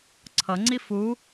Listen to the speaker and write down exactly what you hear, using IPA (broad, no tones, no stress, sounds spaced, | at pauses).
ǀʰ ʌ ŋ͡ǀ i f u